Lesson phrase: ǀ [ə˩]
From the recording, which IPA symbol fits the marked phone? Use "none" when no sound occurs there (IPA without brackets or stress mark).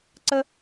ə˧